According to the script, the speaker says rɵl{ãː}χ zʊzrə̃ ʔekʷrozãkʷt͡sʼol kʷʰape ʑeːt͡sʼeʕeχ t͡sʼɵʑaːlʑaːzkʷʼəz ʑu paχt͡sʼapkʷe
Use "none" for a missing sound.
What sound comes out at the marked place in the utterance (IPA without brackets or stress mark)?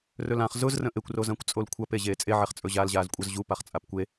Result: ã